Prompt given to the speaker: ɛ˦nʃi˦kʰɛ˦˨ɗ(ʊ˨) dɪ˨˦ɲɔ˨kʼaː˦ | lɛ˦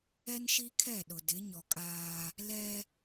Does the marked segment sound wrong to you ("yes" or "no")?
no